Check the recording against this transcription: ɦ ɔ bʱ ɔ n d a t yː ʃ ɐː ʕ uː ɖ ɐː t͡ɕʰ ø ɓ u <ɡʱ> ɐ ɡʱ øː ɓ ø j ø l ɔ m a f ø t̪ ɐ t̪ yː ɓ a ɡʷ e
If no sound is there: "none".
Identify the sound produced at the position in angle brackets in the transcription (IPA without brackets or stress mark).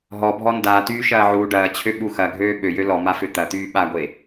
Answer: x